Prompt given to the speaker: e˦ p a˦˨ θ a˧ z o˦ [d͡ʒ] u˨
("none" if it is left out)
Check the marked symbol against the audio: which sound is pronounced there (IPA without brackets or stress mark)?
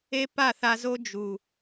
d͡ʒ